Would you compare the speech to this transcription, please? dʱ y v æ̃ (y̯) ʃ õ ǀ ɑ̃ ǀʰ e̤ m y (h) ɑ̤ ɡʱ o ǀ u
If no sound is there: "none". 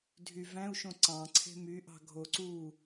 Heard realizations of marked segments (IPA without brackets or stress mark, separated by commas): u̯, ʔ